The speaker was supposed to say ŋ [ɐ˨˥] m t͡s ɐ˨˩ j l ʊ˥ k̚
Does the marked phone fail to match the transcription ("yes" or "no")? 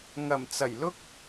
yes